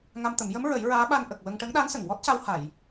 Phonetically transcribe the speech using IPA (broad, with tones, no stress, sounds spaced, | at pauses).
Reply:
ŋ a˧ m t̪ ə˨˩˦ m j ə˧˥ m ɹ ə˨˩˦ j ɹ aː˧˥ ɓ a˧ n ʔ ə˨˩ k̚ w ə˧ ŋ ʈ ə˧˥ ŋ ɗ a˧˥ n s ə˨˩˨ ŋ w ɔ˦˥ t̚ c a˧ w h a˨˩˨ j